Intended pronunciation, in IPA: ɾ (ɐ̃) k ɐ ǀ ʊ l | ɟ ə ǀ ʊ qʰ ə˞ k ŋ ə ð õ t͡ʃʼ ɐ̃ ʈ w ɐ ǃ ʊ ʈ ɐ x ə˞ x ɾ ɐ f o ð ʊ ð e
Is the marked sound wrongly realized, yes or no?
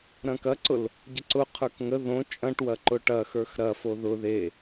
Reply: no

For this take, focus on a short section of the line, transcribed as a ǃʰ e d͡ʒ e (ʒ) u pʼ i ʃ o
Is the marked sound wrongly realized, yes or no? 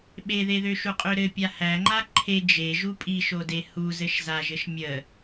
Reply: no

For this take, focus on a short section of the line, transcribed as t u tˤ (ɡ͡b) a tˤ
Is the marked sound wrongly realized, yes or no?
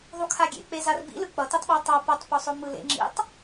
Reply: yes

